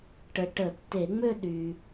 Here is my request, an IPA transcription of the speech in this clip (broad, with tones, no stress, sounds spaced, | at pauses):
ʈ ə˨ ʈ ə˨˩˦ tː e˨˩˦ ŋ͡m ø˥˧ ɗ y˨